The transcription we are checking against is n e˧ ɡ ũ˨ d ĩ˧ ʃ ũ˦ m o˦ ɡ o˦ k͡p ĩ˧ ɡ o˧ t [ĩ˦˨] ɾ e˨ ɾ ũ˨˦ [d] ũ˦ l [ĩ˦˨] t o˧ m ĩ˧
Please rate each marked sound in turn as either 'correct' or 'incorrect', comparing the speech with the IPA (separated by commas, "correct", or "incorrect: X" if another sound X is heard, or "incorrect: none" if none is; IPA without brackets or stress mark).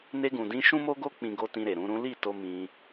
incorrect: ĩ˧, incorrect: ɾ, incorrect: i˦˨